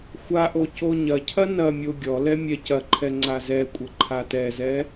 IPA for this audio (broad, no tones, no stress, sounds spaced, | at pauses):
xʷ a ʔ o c o ɲ ɐ cʰ ɐ n ɐ mʲ o ɡʲ ɔ l ɛ mʲ ɛ c ɐ ǃʰ ɛ ŋ͡ǀ a z ɛ kʷʼ ɐ ǃʰ a t ɛ z ɛ